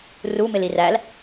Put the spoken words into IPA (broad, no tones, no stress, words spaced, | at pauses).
rumɪlir æl